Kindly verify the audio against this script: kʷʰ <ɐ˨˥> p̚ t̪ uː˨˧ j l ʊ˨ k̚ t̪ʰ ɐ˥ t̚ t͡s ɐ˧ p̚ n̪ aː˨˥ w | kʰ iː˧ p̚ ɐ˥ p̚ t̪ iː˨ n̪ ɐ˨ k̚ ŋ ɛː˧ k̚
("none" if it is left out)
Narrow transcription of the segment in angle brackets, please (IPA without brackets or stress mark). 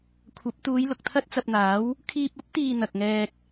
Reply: ɐ˨˥